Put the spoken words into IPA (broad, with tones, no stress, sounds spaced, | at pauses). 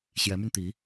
ɕ j ɛ˧˥ m y˧ n t̪ i˧˥